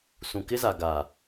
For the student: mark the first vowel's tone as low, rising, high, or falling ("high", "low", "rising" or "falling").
low